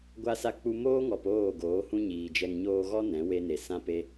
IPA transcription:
ɡʷ a˧ s a˧ k͡p u˧ m oː˦ ŋ ɔ˨ p oː˦˨ ɡ oː˨˦ h ũ˦ ɲ iː˨ d͡ʒ ɛ˧ ŋ ɲ oː˧ ɣ ɔ˦ n ɛ̃˨˦ w e˦ n e˨ s ã˦ p e˦

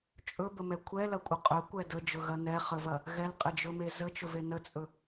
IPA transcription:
t͡ʃʼ ɵ b ə m ɛ kʷʰ ɛ l ɐ kʷʼ ə qʼ ɵ kʷ ɛ d ə d͡ʒ ɵ ɣ ɐ n ɛ χ ə v ɐ | ɣ ɛ l qʼ ɛ d͡ʒ ɵ m e z ə t͡ʃ ɵ v e n ə t͡sʼ ɵ

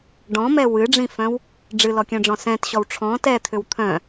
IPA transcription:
ɖ ɔ̃ m ɛ w ɨ ɖ͡ʐ ĩ f œ̃ w | ɖ͡ʐ ɨ l ɔ kʲ œ̃ ɖ͡ʐ ɔ̃ s ɛ̃ t ɕ ɔ w ʈ͡ʂʰ ɔ̃ t ɛ t̪ʰ ʏ w t̪ʰ œ̃

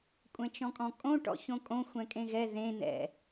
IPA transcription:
kʷʼ ɛ̃ t͡ʃ ɔ̃ kʼ ɔ̃ kʼ õ ʈ ɔ̰ ç õ kʼ õ xʷ ɛ̃ kʼ ẽ ɣ ɛ ð ẽ n ɛ̰

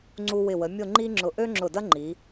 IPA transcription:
ŋ͡ǀ u˧ w ɪ˧˩ w ə˩˧ mʲ ʊ˥˧ ŋ͡ǃ i˥ ŋ͡ǁ ʊ˧ ʔ ø˥ ŋ͡ǁ ʊ˧˩ d ɐ˥ ŋ͡ǃ i˩˧

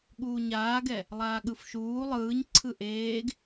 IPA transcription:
ɠ uː ɲ aː ɡ ɛ | lˠ aː ɠ ɯ f ʃ uː lˠ ɯː ɲ ǀʰ ɯ ʔ eː ɡ

